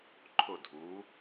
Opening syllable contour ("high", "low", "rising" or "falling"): falling